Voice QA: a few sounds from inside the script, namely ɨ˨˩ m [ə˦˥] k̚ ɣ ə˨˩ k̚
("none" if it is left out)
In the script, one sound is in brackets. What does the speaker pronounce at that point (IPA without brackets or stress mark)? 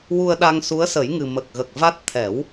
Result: ə˨˩